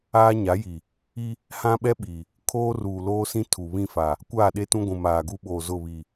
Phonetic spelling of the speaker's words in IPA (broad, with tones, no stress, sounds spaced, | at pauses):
aː˦ ɲ a˨˦ j i˨ | i˦ | h ã˦ ɓ ɛ˦ ɓ i˨ | kʰ oː˦ r uː˨ l oː˦ s ĩ˦ tʰ u˨ β ĩ˦˨ f a˨ | kʷ aː˦˨ ɗ e˦ t ũ˦ ɡʷ ũ˨ m aː˨ ɡ u˦ ɓ oː˨ z ʊ˦˨ β i˨